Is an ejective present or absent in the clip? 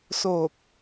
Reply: absent